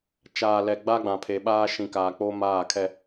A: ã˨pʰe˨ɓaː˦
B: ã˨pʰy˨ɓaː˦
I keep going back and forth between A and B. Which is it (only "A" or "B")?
A